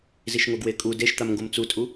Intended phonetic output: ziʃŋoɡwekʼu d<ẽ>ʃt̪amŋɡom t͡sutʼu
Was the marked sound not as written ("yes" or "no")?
yes